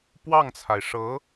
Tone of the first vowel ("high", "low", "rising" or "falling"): falling